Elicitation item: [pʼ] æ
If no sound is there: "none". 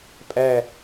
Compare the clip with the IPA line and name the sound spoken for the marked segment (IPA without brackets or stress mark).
pʼ